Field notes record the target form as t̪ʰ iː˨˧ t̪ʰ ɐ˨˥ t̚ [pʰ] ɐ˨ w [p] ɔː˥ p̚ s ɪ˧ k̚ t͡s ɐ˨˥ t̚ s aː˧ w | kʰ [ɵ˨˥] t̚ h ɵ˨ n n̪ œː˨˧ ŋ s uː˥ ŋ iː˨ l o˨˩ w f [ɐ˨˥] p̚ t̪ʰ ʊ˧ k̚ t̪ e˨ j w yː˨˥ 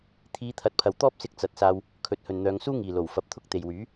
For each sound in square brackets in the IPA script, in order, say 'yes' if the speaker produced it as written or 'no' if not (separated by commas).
yes, no, yes, no